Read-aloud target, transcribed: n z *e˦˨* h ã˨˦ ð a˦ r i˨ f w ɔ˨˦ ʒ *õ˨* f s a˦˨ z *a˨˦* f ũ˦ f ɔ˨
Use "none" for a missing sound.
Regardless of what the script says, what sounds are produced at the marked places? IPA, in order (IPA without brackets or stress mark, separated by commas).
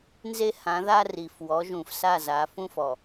e˦, ũ˨, a˨˦